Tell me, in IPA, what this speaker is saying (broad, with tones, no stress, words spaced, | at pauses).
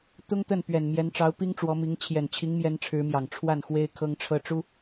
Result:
t̪ʊ˥ŋt̪ə˥˩n pɥɛ˨˩n mjɛ˧˥nʈ͡ʂɑ˧˥ʊ̯ pi˥ŋʈ͡ʂwɔ˧˥mi˧˥ŋ t͡ɕʰjɛ˨˩nt͡ɕʰi˧˥ŋmjɛ˧˥n ʈ͡ʂʰɻ̩˧˥mjɑ˨˩ŋ ʈ͡ʂʰwa˥˩nxwe˥ɪ̯ kʰɤ˥ŋʈ͡ʂʰɤ˥ʈ͡ʂu˥